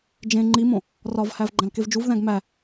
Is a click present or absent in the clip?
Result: present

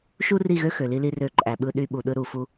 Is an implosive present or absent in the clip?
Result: present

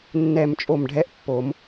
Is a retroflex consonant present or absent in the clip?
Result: present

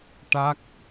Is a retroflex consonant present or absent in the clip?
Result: present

